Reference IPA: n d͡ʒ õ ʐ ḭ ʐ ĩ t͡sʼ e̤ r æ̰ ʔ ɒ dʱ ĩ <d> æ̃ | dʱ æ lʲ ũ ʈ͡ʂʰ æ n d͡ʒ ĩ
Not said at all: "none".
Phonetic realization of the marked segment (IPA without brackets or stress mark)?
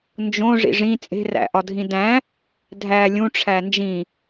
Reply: d